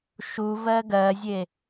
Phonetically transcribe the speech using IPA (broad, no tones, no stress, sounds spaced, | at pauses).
ʃ u v ɜ ɡ ɜ zʲ e